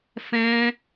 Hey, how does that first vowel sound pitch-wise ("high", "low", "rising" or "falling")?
high